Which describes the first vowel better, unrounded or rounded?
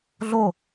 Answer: rounded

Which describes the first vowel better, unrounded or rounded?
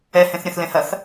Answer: unrounded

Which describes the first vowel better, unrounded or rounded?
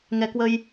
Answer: unrounded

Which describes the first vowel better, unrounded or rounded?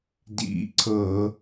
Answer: unrounded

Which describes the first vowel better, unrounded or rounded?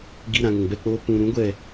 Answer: unrounded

